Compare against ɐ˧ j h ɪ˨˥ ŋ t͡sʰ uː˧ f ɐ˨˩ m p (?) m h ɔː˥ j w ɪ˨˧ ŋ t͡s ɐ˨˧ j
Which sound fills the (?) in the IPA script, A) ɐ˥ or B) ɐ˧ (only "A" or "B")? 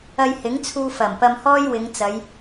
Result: B